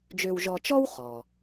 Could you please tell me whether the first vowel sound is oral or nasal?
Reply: oral